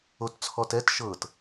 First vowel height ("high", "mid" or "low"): mid